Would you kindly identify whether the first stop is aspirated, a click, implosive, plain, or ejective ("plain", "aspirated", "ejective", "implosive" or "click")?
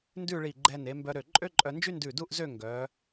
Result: plain